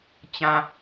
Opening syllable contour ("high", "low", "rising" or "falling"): low